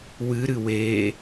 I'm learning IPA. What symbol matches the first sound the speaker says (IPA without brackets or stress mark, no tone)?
w